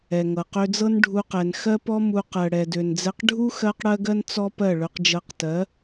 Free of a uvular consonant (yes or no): no